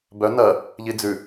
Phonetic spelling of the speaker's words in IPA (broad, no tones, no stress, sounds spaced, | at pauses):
b œ n ɐ | ʎ i d͡z ʉ